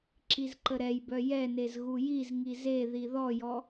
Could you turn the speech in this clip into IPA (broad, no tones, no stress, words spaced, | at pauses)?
ǁizǃəɾɛjbœ jɛnez ɣujizŋi ze ðiðɔjɔ